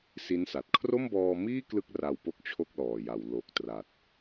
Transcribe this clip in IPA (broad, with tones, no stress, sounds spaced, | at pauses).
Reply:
s i˦˥ n s a˨˩ t̚ kʰ r o˥˩ m b ɔː˧ m iː˥˩ k l ɯ˥˩ k̚ r a˧ w p o˦˥ k̚ t͡ɕʰ o˥˩ k̚ l ɔː˨˩ j a˩˦ w l o˨˩ k̚ t r a˨˩ t̚